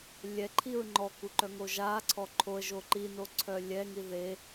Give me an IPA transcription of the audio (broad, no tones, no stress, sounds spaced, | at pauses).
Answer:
lʲ ɛ ǃʰ i ɹ ŋ͡ǃ ɔ k u ǃ œ ŋ o ʒ a ǀʰ ɔ ǃʰ o ə̯ ʒ o ǃ i n o ǀʰ œ lʲ ɛ ŋ i ð e